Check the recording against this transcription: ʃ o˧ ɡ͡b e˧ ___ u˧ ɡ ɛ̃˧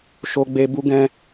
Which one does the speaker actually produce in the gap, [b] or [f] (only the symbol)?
b